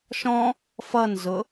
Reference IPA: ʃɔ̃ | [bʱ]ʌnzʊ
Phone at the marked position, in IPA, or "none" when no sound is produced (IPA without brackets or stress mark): f